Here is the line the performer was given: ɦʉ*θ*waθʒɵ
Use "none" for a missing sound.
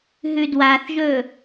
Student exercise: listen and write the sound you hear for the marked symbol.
d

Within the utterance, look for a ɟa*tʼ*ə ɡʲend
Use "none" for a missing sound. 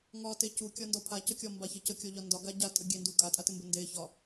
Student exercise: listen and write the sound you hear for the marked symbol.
tʼ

